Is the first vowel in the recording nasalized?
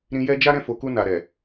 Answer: yes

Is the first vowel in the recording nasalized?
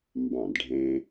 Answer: yes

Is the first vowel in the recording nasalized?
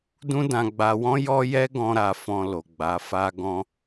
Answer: yes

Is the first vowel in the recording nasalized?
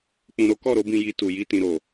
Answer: yes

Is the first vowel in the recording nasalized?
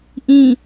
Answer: yes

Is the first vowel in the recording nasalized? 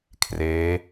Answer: no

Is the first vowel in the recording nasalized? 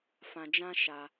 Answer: yes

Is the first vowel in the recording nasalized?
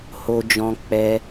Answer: no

